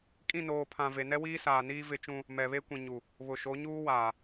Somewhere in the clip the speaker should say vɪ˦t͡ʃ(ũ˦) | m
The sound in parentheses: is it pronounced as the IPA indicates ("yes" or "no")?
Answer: yes